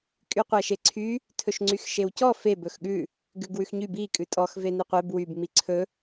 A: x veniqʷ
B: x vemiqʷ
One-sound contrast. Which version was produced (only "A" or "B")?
A